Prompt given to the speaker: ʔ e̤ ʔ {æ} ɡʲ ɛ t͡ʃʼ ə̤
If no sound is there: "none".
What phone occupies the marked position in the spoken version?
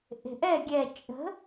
ɛ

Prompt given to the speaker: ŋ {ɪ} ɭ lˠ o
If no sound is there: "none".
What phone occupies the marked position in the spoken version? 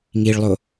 i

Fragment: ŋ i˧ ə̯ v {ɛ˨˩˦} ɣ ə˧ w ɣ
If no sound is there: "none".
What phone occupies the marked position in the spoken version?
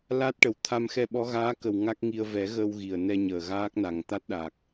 ɛ˨˩˦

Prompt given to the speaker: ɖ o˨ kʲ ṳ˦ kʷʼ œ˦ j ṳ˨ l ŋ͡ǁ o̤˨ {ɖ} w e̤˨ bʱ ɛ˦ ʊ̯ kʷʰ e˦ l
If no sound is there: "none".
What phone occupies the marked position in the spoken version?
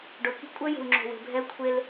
none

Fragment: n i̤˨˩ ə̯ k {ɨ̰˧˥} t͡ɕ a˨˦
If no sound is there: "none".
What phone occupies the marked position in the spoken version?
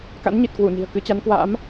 ɨ˨˦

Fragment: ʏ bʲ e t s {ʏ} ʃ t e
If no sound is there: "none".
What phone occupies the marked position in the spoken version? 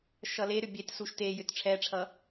u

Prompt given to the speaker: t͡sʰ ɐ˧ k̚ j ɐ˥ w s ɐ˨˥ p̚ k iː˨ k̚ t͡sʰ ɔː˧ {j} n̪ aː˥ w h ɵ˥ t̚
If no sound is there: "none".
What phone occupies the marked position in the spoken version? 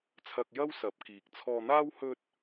none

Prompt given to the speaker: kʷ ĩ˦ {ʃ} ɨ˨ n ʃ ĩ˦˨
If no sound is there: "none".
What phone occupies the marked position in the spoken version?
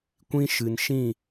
ʃ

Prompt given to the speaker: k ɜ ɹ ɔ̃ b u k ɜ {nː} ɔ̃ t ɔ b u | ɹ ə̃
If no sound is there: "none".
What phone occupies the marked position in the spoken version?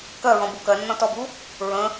nː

